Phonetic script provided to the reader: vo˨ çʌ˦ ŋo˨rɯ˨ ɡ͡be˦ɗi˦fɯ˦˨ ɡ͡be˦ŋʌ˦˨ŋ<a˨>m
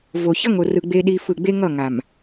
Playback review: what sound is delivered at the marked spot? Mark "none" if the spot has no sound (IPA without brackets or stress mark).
a˨